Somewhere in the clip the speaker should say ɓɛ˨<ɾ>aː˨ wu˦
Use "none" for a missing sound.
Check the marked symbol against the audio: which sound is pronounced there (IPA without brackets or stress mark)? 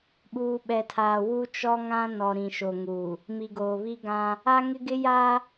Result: tʰ